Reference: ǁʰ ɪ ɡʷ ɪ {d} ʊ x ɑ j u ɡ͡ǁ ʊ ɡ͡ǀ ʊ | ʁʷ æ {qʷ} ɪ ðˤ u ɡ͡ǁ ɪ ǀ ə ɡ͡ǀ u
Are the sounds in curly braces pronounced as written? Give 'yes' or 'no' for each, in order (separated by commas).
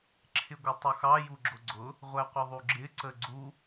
no, yes